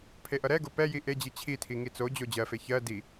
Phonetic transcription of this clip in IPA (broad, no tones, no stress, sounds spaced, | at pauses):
pʰ e ʔ ʌ ɾ ɛ ɡ o p ɛ j i ʔ e d͡ʑ i t͡ɕʰ i tʰ i ŋ i t͡s o d͡ʑ o d͡ʑ ɜ f e ç ɜ d i